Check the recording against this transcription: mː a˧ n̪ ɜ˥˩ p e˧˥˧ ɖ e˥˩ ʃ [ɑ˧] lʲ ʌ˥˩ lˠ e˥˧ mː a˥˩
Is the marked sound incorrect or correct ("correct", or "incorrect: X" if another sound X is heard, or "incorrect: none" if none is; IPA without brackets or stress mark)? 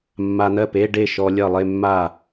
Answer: incorrect: ɔ˧